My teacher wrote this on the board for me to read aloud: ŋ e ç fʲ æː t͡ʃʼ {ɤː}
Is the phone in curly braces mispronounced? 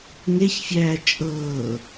no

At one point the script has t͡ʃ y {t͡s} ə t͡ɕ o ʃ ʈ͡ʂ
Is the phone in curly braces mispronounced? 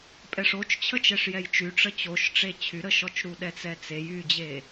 yes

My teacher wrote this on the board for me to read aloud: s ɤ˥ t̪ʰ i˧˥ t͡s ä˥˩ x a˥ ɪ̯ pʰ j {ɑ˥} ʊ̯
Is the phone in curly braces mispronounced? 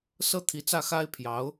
yes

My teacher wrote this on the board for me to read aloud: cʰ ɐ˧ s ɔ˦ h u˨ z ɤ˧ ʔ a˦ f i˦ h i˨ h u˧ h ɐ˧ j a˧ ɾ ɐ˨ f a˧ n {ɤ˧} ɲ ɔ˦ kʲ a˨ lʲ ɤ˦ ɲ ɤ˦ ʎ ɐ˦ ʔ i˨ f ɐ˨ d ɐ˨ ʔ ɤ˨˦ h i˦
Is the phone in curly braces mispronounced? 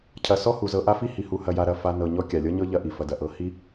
no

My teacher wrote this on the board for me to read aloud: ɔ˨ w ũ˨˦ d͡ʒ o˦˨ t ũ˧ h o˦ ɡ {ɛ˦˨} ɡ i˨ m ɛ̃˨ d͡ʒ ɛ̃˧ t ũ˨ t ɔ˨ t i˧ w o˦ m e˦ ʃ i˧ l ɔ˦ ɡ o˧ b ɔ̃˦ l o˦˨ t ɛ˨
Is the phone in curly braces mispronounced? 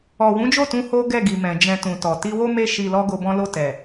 no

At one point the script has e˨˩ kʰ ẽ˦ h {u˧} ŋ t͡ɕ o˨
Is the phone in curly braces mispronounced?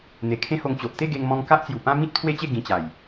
yes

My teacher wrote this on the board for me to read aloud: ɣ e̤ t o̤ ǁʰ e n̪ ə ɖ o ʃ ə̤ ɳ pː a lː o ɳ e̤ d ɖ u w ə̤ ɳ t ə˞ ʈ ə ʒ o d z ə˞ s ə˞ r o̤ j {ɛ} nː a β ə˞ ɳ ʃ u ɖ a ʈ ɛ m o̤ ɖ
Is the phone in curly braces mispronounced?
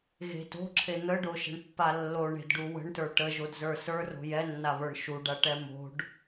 no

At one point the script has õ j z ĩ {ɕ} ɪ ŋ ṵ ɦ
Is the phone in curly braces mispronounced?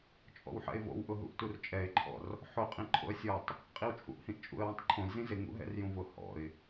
yes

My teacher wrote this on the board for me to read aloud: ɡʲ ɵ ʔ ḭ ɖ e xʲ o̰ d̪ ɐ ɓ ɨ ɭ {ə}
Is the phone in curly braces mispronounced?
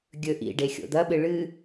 yes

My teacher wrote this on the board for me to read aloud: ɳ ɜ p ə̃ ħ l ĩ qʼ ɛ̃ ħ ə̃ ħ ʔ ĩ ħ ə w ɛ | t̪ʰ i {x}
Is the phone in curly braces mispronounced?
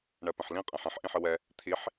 yes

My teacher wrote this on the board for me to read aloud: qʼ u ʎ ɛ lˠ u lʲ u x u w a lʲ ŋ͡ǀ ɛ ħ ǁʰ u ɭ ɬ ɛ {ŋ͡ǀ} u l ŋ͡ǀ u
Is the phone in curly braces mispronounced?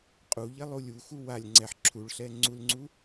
no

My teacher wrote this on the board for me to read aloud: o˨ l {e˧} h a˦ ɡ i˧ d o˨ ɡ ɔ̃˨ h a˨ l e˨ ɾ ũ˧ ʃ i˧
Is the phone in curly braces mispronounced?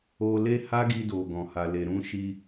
no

